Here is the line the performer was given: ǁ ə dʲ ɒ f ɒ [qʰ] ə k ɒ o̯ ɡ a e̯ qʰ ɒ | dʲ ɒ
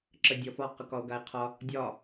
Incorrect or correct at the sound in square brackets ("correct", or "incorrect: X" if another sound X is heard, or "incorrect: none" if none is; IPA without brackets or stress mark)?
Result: incorrect: q